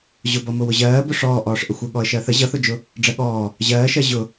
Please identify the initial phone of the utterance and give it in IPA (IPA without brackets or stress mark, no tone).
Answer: ʑ